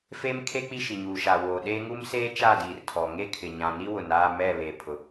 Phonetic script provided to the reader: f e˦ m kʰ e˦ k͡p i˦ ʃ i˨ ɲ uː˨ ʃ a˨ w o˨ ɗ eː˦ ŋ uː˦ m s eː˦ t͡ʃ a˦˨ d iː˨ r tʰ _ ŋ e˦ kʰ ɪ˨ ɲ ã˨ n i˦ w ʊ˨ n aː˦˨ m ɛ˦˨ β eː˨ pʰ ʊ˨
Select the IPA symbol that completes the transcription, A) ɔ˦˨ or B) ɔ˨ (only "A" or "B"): B